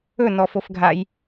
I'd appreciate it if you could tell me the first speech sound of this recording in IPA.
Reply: ɵ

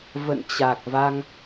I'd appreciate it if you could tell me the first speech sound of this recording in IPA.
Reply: v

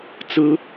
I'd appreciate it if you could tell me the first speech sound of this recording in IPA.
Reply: t͡s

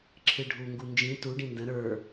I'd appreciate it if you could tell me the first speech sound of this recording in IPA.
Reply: ǁʰ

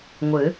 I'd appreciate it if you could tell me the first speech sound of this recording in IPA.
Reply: ŋʷ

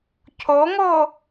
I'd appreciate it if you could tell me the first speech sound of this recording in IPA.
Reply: cʰ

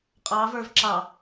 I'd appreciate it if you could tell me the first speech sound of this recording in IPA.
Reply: qʼ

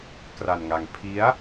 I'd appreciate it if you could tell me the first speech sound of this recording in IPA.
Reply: k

